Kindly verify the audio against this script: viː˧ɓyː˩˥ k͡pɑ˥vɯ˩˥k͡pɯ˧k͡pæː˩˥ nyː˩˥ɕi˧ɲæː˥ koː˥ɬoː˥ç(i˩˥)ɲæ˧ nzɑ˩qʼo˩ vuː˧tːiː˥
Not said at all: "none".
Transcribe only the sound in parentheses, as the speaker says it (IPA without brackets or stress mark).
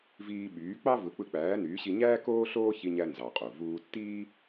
i˧